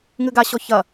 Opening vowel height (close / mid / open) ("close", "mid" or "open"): close